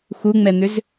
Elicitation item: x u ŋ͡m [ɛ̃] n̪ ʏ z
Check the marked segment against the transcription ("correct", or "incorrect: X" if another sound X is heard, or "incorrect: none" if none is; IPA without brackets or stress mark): incorrect: ɛ